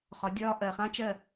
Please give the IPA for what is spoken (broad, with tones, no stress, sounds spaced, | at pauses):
χ ɒ˨˦ dʲ ɒː˧ ʔ ɜ˨ χ ã˦ t͡ʃ ɜ˦˨